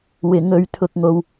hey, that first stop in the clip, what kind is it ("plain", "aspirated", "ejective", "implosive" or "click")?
aspirated